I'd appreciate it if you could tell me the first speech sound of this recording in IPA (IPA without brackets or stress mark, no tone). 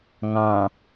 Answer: ŋ